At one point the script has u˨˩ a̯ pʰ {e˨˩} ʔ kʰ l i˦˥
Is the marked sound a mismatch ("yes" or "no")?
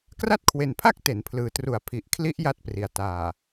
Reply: yes